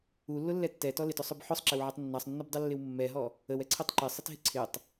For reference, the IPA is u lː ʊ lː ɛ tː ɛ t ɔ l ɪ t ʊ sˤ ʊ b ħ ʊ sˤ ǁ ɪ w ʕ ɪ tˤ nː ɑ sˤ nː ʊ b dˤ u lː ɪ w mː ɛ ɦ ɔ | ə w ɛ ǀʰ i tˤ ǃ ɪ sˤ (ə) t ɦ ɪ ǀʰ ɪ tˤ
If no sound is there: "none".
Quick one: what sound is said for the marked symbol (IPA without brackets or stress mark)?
ɪ